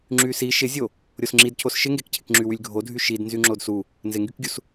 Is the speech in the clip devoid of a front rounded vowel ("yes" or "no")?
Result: no